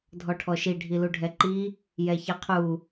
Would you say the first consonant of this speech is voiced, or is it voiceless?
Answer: voiced